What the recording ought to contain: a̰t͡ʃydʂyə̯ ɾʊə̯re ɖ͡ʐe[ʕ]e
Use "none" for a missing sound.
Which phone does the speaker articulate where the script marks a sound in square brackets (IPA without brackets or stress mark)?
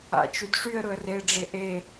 ʔ